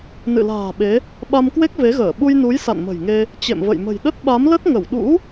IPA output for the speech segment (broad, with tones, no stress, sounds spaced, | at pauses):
n ɨ̰˧˨ l a̤ː˨˩ ɓ e˨˦ | ɓ a˧ m k w e˦˥ k̚ v e˨˦ ɣ əː˧˩ ɓ u˧ j n u˨˦ j s a̰˧˨ n m ə̤˨˩ j ŋ e˧ | t͡ɕ ḛ˧˨ m v ə̰˧˨ j m ə̤˨˩ j ɗ ə˦˥ t̚ ɓ a˨˦ m l ə˦˥ t̚ ŋ ə˧˩ w ɗ ṵ˧˥